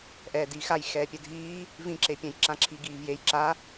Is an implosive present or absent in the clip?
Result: absent